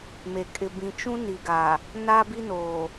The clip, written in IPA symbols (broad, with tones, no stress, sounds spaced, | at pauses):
m e˨ kʼ ɪ˨ b ĩ˨ t͡ʃ ũ˦ n i˨ ɡ a˨ | n a˦ b i˦ n oː˨